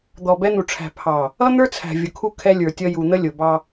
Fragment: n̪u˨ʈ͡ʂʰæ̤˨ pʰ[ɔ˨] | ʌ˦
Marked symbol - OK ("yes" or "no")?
no